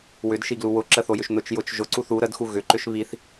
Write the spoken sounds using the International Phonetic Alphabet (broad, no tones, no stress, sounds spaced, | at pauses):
w ʏ d ʃ i ɡ l u w ʊ ǁ ə θ o j ʏ ʃ n ʊ t͡ʃ j ʊ t͡ʃ ʒ ʊ ǀ u θ u ɾ ə d x u ɣ ʏ ǃ ʏ ʃ β i θ